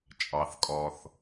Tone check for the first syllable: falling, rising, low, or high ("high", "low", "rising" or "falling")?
low